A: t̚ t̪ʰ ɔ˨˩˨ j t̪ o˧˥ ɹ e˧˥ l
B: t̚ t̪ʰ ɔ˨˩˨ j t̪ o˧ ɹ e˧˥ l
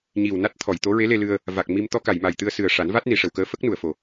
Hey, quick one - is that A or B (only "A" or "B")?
A